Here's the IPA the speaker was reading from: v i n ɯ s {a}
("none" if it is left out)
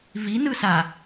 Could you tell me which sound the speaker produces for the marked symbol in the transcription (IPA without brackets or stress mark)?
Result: a